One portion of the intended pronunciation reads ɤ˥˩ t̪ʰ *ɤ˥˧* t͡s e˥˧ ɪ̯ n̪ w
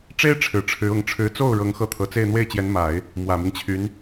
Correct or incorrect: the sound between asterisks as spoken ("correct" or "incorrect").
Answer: incorrect